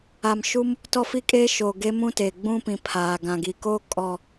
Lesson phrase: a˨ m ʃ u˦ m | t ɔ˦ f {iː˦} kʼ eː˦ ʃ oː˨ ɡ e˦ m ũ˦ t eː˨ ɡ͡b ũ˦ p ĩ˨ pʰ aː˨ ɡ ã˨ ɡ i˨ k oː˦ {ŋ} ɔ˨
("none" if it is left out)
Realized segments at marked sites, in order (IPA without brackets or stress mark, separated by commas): i˦, kʼ